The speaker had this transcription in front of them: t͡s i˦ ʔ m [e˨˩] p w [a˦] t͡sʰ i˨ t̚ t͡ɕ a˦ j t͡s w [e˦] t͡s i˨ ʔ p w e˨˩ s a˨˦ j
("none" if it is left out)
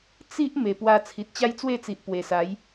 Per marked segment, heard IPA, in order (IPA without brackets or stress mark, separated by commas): e˨˩, a˧, e˥˧